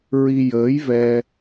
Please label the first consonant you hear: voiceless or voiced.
voiced